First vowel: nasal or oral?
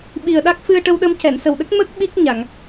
oral